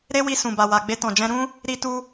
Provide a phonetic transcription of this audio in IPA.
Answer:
ɾe˦wi˧ sũ˨ba˨wa˨ ɡ͡be˧tɔ̃˨d͡ʒɛ̃˧ ɾũ˦ | ɾi˧tu˧

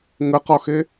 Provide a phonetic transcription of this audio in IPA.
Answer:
ŋəqɒxe

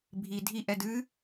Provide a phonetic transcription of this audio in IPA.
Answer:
bʱi dʱiʔɛ dɨ

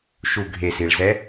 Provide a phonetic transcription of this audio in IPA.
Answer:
ʃu ɡʱesiɭzɛ

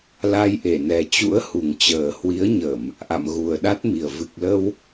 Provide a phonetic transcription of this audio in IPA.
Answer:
la˧jʔe˧˩nɛ˨˩ t͡ɕṵ˧˥ə̯hu˨˩ŋt͡ɕəː˨˩ hwi˨˦ə̯ɲə˧˩˨m | ʔa̰˧˨mɣu˨˩ə̯ɗa˦˥t̚mi˨˩ə̯ vɨ˨˩k̚lə˧w

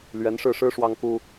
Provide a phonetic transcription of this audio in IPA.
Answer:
lɥɛ˧˥nʂɻ̩˥˩ʂɻ̩˥ ʂwɑ˥ŋku˥

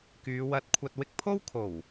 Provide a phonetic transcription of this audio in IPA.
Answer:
kyː˨˧wɐ˧t̚kʷʰɐ˧t̚ wɪ˧k̚pʰo˥wkʰo˨˩w

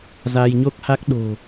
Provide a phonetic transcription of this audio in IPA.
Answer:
za˧jɲo˦˥k̚ha˦˥k̚ ɗo̤˨˩

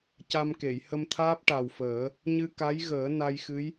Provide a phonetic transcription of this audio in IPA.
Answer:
ca˧mke˨˩˨j hə˧mt̪ʰaː˦˥p̚ ʈa˨˩wfəː˨˩˦ | ɲɨ˧ka˧˥j ɣəː˨˩˦na˧jxɨ˧˥j

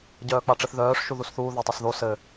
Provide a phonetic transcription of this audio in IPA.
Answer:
ɟœːk͡paʈ͡ʂɘθðœːʂ ʃuðusθuː ðotˤosðo sɘ

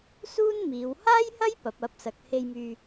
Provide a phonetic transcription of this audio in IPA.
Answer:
suː˥nmiː˨˧w haː˥jhɐ˥j pɐ˨˥p̚ɐ˨˥p̚ sɐ˨k̚ he˧jmyː˧

